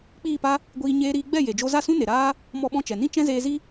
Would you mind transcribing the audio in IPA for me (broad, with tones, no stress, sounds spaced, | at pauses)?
k͡p iː˦˨ p a˦ | ɡʷ iː˧ ɲ eː˧ ɾ iː˧ ɡ͡b ɛ˦˨ j e˨ d͡ʒ o˧ z a˦˨ s ũ˦ n e˨ ɾ aː˦ | m ɔ˧ ɓ ɔ̃˧ t͡ʃ ɛ˨ n ĩ˦ t͡ʃ ɛ̃˦ z eː˧ z i˦